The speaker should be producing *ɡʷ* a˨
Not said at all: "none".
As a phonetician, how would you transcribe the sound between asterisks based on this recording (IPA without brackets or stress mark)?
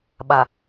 ɓ